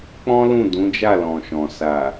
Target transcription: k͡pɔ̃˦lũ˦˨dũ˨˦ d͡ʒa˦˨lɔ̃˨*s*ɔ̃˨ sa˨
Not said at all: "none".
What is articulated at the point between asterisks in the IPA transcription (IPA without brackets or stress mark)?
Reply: ʃ